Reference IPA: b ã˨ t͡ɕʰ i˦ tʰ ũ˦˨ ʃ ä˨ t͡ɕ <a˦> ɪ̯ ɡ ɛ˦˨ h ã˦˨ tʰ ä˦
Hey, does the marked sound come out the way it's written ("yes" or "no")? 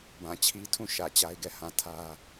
yes